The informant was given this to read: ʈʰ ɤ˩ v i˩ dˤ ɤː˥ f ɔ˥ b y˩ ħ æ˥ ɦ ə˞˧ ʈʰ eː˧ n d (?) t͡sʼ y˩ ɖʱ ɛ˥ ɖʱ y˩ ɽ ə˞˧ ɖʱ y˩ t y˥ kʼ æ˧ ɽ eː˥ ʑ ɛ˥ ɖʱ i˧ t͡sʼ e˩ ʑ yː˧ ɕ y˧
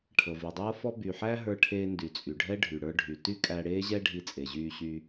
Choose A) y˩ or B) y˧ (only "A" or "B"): A